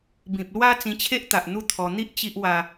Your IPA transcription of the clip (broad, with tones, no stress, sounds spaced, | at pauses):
b ĩ˨ p̚ l w a˦ t͡s ĩ˧ t͡ɕʰ e˦ ʔ t̪ a˨ ʔ n̪ u˦ t̪ʰ ɔ˧ n̪ i˦ ʔ t͡ɕ i˦ ʔ w a˧